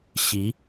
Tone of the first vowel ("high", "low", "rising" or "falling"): rising